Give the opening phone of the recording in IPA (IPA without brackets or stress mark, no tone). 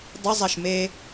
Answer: dˤ